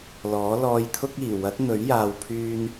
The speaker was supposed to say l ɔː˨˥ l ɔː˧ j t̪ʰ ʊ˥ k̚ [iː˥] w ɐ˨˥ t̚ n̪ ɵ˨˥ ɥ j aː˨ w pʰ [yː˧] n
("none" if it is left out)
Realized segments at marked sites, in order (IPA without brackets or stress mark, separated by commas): iː˨˩, yː˧